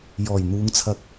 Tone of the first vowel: low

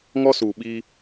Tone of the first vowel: high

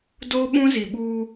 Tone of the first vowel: high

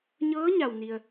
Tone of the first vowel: rising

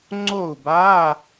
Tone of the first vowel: falling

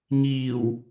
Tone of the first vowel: low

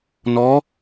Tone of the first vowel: rising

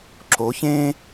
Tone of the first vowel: rising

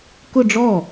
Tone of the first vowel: falling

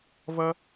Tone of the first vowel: high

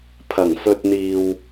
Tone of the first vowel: low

